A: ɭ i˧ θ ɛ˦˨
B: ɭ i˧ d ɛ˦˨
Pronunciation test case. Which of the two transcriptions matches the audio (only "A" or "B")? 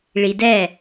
B